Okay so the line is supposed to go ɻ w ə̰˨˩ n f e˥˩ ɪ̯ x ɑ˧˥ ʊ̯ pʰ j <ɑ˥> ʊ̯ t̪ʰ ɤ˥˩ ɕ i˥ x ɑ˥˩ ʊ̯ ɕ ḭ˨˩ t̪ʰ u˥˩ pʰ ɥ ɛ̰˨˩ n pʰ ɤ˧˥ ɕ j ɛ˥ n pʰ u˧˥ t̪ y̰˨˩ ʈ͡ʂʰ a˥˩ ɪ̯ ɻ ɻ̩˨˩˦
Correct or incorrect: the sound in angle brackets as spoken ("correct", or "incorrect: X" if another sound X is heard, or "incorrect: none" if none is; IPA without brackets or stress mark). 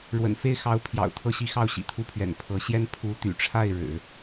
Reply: incorrect: ɑ̰˨˩